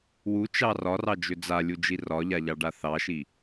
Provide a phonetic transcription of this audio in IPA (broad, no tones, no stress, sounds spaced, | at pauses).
w u t͡ʃ ɑ r ɒ r ɑ d͡ʒ ʏ d͡z a lʲ u d͡ʒ i r ɒ ʎ a ʎ ɑ ɖ a θ ɑ ʃ i